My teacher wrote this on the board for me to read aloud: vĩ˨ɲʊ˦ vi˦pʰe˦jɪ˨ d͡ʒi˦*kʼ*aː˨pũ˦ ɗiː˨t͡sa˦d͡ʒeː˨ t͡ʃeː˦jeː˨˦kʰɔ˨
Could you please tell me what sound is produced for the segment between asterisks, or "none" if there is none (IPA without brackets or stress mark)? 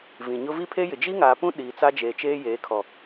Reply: ŋ